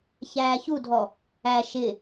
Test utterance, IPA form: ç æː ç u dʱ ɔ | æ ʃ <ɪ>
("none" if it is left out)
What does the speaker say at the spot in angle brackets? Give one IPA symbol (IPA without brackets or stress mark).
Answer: ɪ